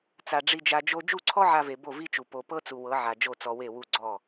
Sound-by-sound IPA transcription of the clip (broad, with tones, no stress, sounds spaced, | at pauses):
t͡s a˨ ɖ͡ʐ i˧ d͡ʒ a˧ d͡ʒ o˦ d͡ʒ u˦˨ ǀʰ ɔ˦ ʕ a˧ v e˨ b o˦˨ v i˦ t͡ʃ u˨ p o˨ p ɤ˦ t͡s u˨ w ɤ˨˦ ʕ a˨ d͡ʒ o˦˨ t͡s ɔ˧ w e˦˨ w u˦˨ ɡ͡ǀ ɔ˦˨